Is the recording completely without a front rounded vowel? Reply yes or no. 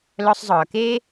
no